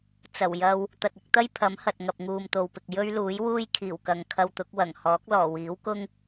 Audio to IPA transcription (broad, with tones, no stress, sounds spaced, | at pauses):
t͡s ɐ˨˩ w j ɐ˧ w | t̪ ɐ˨ t̚ ɪ˧ k̚ t̪ ɐ˥ j pʰ ɐ˨˥ m h ɐ˨ t̚ ŋ ɐ˨ p̚ ŋ uː˨ m t̪ o˨ w p ɪ˨ k̚ j ɵ˥ ɥ l uː˨˥ j w uː˥ j kʰ iː˨˩ w k ɐ˨ ŋ kʰ ɐ˧ w t̪ ʊ˨˥ k̚ w ɐ˨˩ ŋ h ɔː˨˥ k̚ l ɔː˨˩ w iː˨˥ w k ʊ˥ ŋ